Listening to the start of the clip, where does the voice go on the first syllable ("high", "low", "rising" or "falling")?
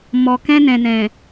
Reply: low